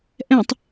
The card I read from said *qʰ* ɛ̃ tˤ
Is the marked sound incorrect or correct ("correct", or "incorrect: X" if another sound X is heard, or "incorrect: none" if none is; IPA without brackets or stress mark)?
incorrect: ʔ